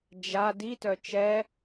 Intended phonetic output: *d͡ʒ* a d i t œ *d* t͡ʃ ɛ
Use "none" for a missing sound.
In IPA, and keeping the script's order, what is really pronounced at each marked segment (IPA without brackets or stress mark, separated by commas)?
d͡ʒ, none